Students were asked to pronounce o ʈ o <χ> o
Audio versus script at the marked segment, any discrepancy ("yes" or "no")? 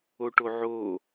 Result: yes